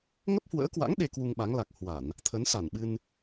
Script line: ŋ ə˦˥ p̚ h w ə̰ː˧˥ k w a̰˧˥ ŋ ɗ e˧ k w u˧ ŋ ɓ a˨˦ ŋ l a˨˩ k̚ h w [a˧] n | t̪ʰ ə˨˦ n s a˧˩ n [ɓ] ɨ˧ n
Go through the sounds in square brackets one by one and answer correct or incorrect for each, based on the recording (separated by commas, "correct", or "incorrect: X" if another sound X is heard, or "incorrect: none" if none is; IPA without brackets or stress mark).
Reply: incorrect: a˧˩˨, correct